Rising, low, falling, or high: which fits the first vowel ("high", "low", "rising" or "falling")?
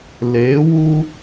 rising